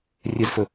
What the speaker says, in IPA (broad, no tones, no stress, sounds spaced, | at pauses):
rʲ ɨ z f ɵ